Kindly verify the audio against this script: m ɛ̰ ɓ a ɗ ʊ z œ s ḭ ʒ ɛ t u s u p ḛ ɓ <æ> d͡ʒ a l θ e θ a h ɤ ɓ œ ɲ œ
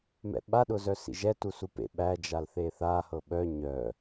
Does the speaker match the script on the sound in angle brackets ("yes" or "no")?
yes